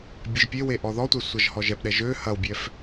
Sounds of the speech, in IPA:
bʲ e ʒ pʲ e w e ʔ ɔ ð ɔ tʷ ɛ sʷ ɐ ʒ h ɔ ʒ ɛ p ɗ ɛ ʒ ø h ɐ w bʲ ɛ f

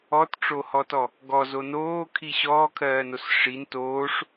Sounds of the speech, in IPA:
ɔ t ʈ͡ʂ o h ɔ t ɔ | ɡ ɔ z o n oː kʰ i ɕ ɔː kʰ ɜː n o s ʂ i n t oː ʂ

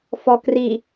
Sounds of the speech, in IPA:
f ɔ k r i

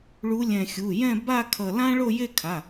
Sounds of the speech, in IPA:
ɭ u˨˦ lʲ ɛ̃˧˩ xʲ u˩˧˩ j ɛ̃˥˧ b a˥˧ kʰ ʌ˧˩ l ã˥ ɭ o˥˧ j e˥˧ kʰ a˩˧˩

